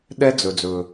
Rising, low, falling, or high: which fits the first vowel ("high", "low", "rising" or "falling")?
high